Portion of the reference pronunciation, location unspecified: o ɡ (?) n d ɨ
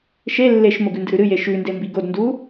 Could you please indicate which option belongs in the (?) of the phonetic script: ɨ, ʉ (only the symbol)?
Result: ʉ